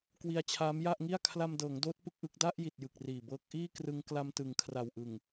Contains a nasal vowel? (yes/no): no